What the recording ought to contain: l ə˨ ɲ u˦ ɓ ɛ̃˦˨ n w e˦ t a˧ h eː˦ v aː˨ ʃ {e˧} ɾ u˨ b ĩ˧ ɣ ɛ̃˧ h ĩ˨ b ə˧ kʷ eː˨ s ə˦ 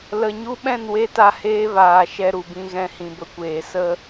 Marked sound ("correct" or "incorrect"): incorrect